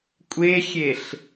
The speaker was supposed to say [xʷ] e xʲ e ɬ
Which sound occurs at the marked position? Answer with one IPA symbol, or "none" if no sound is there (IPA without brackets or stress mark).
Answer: kʷʼ